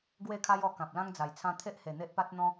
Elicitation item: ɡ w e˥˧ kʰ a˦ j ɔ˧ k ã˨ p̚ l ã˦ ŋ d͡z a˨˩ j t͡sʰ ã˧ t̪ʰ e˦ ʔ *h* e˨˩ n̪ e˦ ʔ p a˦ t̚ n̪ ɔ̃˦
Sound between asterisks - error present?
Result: no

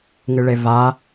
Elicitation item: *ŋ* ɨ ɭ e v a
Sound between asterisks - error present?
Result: no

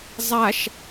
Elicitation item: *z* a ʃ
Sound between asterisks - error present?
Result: yes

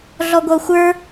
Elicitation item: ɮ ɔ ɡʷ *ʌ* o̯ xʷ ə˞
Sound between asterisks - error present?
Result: no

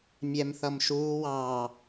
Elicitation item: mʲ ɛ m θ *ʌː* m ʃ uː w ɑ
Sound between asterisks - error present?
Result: yes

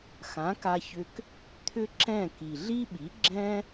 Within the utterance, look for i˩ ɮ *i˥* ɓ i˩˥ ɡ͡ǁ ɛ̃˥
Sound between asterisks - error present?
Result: no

